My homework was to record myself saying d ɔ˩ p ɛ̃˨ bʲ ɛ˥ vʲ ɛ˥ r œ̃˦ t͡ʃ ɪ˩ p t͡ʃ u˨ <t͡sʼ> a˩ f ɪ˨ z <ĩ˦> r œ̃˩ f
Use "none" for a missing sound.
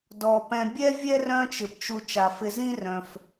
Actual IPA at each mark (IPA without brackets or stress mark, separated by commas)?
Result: t͡ʃ, ĩ˦